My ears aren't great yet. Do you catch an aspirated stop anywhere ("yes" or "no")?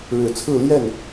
yes